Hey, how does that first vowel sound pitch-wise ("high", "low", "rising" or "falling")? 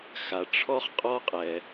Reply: low